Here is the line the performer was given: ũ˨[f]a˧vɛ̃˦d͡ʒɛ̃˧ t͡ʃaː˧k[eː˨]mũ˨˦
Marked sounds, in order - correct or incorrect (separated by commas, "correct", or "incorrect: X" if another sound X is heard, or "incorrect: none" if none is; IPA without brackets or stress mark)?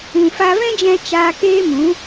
correct, incorrect: eː˦